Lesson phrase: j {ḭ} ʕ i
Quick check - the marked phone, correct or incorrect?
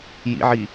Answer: correct